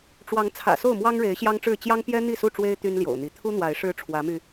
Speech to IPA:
ʈ͡ʂ w ɑ˨˦ ŋ t͡sʰ ä̰˨˩ s o˥˨ ʊ̯ m w ɑ˦ ŋ ɻ e˨˦ ɪ̯ ɕ j ɑ˦ ŋ ʈ͡ʂ ɻ̩˥˨ t͡ɕ j ɑ˦ ŋ p j ɛ˦ n̪ i˥˨ s u˥˨ ʈ͡ʂ w e˦ ɪ̯ t̪ y˦ n l j o̰˨˩ ʊ̯ n̪ i˨˦ t̪ʰ u˦ n̪ w a˨˦ ɪ̯ ʂ ɻ̩˦ ʈ͡ʂʰ w ä˨˦ m y˧

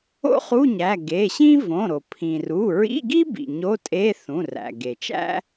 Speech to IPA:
o̰˥ χ u˧˥˧ ɲ æ˩˧˩ ɡ e˩˧˩ ɕ ĩ˥ v õ˩˧˩ ɾ o˩ pʰ ĩ˩ r u˩˧˩ ɹ ḭ˧˥˧ ɡ i˥ b ḭ˩ ɲ o˧˥˧ tʼ e˧˥˧ θ ũ˩˧˩ r æ̰˩ ɡ e˩ t͡ʃ æ̰˥

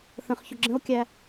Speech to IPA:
θ ə̃ χ ç ʊ ɡ͡ǁ ə̃ o̯ kʲ æ

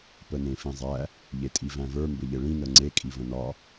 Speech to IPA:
p ə n ẽ f ĩ zˤ æ | ʎ e tʼ i v æ̃ v ə˞ m b ɘ ʎ ɘ ɭ ĩ n ə ŋ͡ǀ e kʼ i v ə̃ n ɒ

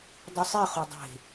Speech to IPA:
dˤ ɯ sˤ i χ o dˤ e̤

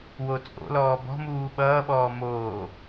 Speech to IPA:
w o t͡sʼ o̰ l ɔː b ɔ̤ m uː ɓ ʌː ɓ ɔː m oː

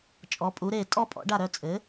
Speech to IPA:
t͡ʃʼ ɔ˩˥ pʼ u˩˥ ɾ e˥˩ tʼ ɔ˥ pʼ ɔ̰˩˥ ɖ a˥˩ ɾ œ˥˩ t͡sʼ ɘ˩˥

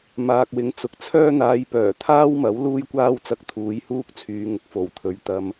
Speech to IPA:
m aː˨ k̚ w ɪ˨˧ ŋ t͡s ʊ˨˥ k̚ t͡sʰ œː˥ n̪ aː˧ j p œː˨˩ t̪ʰ aː˥ w m ɐ˨˥ w l uː˥ j kʷ aː˥ w t͡s ɐ˧ k̚ t̪ʰ uː˨˧ j h uː˥ k̚ t͡sʰ yː˨˧ ŋ ʊ˨˥ k̚ f o˨˩ w t̪ʰ ɵ˨ ɥ t̪ ɐ˧ m

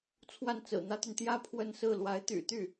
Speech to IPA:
t͡sʰ w a˥˩ n t͡s ɹ̩˨˩ n̪ ä˥ t̪ y˨ n t̪ j ä˥˧ pʰ w ə˥˧ n s ɹ̩˥˩ l w a˧˥ ɪ̯ t̪ y̰˨˩ t̪ y˥˩

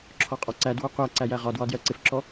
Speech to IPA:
ǁʰ ɔ qʼ ɒ ǀ æ d w ɒ qʷ æ ǀ æ j æ ʁ ɒ d w ɒ d j ɜ ǀ ɪ f ǁ ɔ

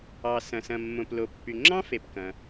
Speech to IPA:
ɑ˩ s ɐ̃˩ s ɐ̃˩ mː õ˩ p l o˩ pː y˩ ŋ͡ǁ ɑ̃˥ f e˩ p k ɐ̃˩

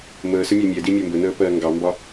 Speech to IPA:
m əː s ə mʲ ɛ mʲ ɛ d i mʲ əː m b ə n əː p ɜː ŋ ɡ ɑ m b ɒ

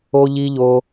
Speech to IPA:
o˦ ʎ i˦ ʎ o˦

